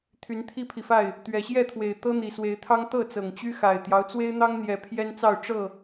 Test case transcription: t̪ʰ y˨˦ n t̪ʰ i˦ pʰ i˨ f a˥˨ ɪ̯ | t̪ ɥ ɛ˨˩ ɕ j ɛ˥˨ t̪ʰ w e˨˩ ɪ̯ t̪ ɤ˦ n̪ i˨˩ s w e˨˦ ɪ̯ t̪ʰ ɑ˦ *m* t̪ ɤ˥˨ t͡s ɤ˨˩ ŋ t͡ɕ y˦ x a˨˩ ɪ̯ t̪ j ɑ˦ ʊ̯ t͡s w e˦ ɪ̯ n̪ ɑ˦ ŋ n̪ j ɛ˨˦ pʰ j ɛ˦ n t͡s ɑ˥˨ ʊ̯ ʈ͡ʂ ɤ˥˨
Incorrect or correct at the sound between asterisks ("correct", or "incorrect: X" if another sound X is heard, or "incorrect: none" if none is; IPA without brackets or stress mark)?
incorrect: ŋ